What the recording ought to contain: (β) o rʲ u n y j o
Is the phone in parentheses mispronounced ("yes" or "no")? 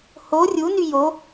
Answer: yes